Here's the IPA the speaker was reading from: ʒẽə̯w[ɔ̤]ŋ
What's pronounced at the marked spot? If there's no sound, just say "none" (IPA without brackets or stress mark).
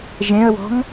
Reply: ɔ̤